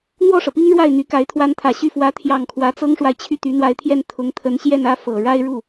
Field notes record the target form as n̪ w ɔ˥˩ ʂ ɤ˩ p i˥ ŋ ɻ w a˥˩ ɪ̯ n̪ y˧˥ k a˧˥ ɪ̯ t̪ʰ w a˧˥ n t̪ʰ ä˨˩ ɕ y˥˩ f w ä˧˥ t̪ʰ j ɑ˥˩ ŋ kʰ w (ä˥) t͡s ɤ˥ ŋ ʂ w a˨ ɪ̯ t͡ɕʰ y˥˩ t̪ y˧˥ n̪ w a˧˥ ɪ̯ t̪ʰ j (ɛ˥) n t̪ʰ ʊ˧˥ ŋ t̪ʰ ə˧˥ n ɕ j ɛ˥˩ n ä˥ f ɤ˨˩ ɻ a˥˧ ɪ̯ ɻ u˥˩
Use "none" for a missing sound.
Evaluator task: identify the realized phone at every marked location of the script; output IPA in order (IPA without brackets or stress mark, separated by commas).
ä˧˥, ɛ˥˩